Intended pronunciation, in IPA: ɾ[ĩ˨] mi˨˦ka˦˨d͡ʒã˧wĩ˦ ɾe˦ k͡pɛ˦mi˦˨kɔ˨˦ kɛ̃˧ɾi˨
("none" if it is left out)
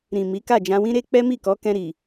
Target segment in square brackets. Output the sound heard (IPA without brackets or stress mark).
ĩ˨